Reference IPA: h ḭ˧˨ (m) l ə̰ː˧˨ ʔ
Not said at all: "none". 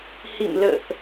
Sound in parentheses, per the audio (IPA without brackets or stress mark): m